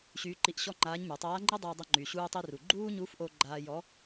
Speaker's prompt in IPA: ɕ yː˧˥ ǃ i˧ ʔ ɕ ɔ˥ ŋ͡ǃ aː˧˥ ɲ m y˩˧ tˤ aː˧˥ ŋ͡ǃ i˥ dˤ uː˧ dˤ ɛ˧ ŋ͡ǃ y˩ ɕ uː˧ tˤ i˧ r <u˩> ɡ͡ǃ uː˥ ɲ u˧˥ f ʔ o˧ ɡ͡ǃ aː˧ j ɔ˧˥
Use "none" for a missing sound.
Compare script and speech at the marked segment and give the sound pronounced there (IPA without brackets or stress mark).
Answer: u˩